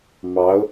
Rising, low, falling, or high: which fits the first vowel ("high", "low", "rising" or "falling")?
rising